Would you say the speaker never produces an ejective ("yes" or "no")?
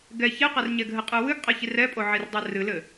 no